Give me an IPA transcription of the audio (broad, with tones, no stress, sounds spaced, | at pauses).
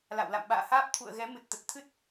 l a̰˧˨ w l a̰˧˨ m ɓ a̰ː˧˨ h aː˦˥ p̚ t̪ʰ ṵ˧˨ ə̯ ɣ ɛ˨˦ m ɨ˨˩ t̚ t̪ ə˨˩ t̚ t̪ʰ ɨ˦˥ t̚